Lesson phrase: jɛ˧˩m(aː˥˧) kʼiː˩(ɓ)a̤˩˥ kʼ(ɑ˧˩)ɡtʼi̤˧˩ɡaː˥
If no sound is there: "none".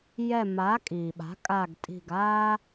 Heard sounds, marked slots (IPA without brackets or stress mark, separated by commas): aː˩˥, ɓ, a˧˩